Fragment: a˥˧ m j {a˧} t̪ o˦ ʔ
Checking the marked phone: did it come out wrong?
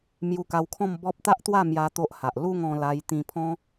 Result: no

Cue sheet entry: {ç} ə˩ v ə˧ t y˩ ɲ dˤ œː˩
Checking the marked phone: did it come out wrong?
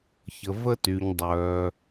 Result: no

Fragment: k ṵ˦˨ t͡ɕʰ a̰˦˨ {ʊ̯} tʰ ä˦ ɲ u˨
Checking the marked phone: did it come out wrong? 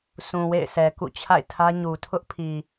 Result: yes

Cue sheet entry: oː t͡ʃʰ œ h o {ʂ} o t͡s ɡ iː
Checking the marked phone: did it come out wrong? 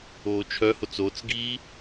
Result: yes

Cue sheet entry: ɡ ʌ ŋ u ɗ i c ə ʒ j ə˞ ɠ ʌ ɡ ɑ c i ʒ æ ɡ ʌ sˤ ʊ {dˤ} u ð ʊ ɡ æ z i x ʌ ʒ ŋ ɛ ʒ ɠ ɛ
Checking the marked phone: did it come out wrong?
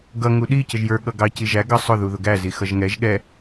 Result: yes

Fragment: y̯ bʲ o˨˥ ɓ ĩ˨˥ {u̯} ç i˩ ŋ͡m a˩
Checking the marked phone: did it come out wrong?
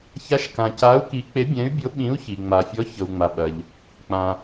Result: no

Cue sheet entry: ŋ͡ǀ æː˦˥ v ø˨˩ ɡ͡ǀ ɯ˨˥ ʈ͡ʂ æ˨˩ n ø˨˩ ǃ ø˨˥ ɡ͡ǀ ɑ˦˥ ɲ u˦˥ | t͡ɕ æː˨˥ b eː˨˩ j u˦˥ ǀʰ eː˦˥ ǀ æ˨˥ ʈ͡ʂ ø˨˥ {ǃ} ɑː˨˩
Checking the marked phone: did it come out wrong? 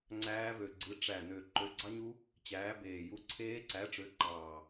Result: no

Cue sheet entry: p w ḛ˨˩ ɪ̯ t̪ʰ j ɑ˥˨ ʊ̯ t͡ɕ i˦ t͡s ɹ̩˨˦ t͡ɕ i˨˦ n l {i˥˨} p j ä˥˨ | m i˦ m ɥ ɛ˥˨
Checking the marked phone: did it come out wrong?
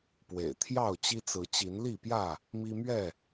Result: no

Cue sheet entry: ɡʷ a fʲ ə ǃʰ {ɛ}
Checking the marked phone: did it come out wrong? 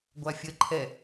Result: no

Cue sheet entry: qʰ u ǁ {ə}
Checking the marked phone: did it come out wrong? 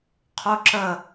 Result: no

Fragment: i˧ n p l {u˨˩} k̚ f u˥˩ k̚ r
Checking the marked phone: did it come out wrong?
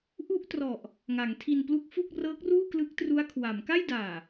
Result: yes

